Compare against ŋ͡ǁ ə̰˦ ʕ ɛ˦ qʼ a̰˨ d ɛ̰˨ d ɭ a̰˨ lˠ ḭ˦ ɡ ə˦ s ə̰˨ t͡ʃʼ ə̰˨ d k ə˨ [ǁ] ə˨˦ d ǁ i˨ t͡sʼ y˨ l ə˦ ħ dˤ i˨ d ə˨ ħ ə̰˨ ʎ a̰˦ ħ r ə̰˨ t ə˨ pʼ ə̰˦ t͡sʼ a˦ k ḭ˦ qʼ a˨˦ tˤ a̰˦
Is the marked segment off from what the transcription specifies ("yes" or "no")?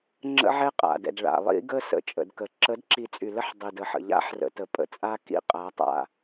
no